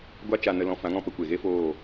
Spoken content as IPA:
ɡʷa˦ t͡ʃa˧nə˧lɔ̃˧ fã˨˦ŋɔ̃˦˨pə˧ kʷe˨ɣe˦foː˦˨

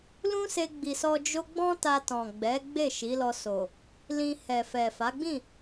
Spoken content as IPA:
lũ˦se˧ɡ͡bi˨sɔ˧ d͡ʒo˦ ɡ͡bɔ̃˦ta˧tɔ̃˨ɡ͡bɛ˨˦ ɡ͡be˦˨ʃi˨˦lɔ˧so˨ | lĩ˧ hɛ˨fɛ˨ fa˨˦ɡ͡bĩ˦˨

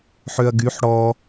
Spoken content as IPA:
ħøɐ̯ɡyħ ɽɔ

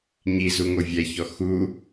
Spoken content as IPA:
ɲizuŋo vʲɛçɔ xu

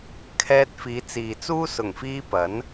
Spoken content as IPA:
kʰɛː˧t̚ fiː˨˧t͡siː˨t͡suː˥ sʊ˨˩ŋfiː˧ pɐ˨˥n

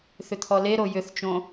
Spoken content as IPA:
θʏt̪ʰɔleɾo jʏθt͡ʃõ

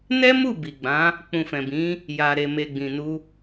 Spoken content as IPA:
nɛ˦mu˦˨ bi˨ɡ͡bã˨˦ | k͡pũ˨fɛ̃˨bĩ˨˦ | ja˨ɾe˨ me˨ɡ͡bĩ˨nu˧

